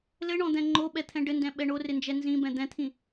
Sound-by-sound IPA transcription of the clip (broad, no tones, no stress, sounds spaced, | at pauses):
l ɘ ɳ ɔ̃ d̪ ɛ̃ ŋ͡ǃ o ɓ ɛ t̪ʰ ɛ̃ ɖ ɘ n d ɛ̃ ɓ ɛ ɳ o r ɪ n d͡ʒ ɛ n z ĩ b ɛ̃ d̪ ɛ̃ t̪ʰ ĩ